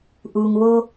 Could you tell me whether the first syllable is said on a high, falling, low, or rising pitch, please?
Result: low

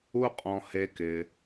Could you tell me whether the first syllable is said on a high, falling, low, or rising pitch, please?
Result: high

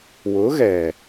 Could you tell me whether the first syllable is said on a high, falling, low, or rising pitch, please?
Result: rising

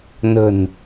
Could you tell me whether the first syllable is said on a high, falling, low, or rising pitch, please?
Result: low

